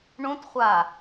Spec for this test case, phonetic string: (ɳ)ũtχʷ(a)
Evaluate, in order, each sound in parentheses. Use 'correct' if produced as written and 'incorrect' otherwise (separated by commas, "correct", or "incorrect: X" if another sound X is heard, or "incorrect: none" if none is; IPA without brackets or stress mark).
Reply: correct, correct